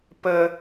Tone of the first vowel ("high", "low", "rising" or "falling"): high